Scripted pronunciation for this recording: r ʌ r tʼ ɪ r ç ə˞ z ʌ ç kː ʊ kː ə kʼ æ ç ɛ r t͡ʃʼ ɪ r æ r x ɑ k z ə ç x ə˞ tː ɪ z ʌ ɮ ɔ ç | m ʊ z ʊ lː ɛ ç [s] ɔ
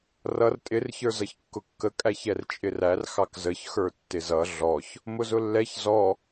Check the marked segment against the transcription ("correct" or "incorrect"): incorrect